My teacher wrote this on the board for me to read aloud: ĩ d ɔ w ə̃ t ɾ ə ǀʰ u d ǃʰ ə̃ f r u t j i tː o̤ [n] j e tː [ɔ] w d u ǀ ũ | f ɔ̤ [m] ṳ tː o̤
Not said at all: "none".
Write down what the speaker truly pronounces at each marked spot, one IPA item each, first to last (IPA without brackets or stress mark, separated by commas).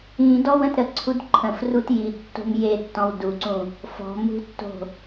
m, ɔ̃, m